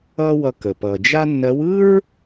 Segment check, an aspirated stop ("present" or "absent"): absent